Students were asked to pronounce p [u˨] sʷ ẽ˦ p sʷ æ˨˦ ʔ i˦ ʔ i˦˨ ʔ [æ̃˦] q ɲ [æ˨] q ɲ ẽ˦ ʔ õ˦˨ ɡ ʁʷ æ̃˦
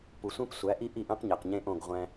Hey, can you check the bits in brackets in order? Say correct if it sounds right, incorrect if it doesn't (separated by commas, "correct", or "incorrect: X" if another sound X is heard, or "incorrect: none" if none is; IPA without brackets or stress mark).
correct, correct, correct